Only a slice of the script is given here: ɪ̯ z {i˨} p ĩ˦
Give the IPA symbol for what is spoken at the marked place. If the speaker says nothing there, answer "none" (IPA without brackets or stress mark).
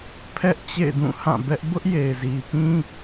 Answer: i˨